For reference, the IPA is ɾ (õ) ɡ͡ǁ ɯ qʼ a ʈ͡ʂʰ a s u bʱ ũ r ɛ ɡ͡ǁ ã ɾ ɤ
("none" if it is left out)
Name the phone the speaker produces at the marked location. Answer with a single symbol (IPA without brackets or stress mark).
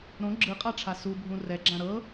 õ